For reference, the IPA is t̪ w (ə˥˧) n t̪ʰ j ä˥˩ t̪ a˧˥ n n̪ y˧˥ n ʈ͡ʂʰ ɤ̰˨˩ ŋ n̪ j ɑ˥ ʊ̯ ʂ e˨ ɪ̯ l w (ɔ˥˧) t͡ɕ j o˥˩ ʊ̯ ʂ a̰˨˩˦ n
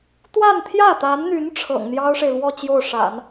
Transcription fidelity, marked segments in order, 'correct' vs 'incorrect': incorrect: a˥˧, correct

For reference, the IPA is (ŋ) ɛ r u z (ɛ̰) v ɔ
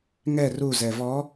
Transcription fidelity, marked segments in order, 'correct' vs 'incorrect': correct, incorrect: ɛ

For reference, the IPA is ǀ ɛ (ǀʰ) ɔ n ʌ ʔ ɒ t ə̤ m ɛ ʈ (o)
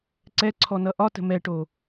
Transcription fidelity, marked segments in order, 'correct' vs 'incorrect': correct, correct

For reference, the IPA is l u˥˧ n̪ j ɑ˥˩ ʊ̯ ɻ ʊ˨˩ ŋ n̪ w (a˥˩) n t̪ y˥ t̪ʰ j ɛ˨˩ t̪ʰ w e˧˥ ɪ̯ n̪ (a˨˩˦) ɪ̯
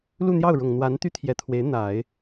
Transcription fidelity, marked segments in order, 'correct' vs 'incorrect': incorrect: a˧˥, correct

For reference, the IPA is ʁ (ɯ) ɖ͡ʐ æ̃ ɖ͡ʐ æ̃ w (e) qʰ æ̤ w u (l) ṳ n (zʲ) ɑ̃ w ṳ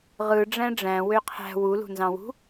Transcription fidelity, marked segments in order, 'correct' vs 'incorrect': correct, incorrect: ø, correct, incorrect: z

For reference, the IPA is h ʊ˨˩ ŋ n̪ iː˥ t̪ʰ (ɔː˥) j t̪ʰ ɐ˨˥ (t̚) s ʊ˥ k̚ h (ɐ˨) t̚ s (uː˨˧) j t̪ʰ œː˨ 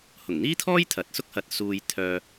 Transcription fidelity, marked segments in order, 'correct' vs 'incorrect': correct, correct, correct, incorrect: uː˨

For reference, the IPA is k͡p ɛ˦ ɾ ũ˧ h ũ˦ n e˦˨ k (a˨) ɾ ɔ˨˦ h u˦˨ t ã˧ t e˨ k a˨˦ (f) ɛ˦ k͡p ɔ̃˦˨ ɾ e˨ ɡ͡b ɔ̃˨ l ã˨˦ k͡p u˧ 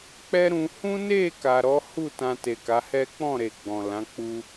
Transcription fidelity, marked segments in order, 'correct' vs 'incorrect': correct, incorrect: h

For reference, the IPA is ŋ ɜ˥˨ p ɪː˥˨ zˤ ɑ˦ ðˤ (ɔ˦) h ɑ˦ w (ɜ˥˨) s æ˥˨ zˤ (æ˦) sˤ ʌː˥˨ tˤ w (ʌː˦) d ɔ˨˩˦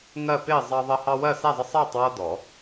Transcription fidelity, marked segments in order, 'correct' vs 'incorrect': incorrect: ʌ˦, correct, incorrect: ə˦, correct

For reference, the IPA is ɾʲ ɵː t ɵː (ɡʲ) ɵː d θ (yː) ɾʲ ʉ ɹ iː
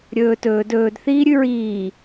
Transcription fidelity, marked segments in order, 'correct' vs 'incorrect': incorrect: d, incorrect: iː

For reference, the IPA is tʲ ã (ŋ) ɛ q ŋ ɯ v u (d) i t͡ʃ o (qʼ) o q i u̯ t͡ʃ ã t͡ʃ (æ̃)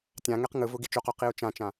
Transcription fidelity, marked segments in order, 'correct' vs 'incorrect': correct, incorrect: ɡ, incorrect: q, incorrect: ã

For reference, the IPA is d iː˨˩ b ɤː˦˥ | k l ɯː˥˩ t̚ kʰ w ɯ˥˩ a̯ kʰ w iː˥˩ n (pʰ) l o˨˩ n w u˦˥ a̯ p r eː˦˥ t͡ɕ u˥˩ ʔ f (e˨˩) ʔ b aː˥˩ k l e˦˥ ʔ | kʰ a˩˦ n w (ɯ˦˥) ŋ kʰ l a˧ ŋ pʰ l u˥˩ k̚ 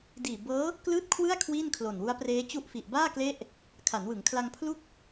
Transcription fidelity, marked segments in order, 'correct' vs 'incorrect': incorrect: kʰ, incorrect: i˨˩, incorrect: ɯ˩˦

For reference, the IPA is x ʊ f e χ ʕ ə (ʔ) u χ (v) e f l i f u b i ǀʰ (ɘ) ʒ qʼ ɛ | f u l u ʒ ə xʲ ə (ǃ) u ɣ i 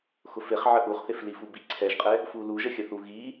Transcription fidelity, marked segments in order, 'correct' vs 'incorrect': correct, incorrect: θ, incorrect: ɛ, incorrect: θ

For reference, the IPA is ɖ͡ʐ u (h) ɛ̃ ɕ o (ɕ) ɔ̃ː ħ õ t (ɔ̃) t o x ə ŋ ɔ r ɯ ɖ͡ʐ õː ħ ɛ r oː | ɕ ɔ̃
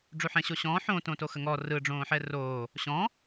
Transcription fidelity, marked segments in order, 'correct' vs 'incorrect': incorrect: ħ, correct, incorrect: õ

